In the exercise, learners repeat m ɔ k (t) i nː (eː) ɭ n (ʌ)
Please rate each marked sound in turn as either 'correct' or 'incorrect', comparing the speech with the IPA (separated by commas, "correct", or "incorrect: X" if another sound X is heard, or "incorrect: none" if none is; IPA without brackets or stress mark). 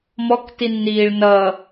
correct, incorrect: iː, correct